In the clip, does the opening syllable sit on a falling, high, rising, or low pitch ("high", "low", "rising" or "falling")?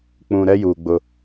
low